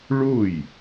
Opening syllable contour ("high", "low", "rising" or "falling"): falling